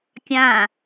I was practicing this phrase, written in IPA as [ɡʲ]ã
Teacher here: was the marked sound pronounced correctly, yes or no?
no